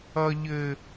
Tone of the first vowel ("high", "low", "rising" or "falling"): low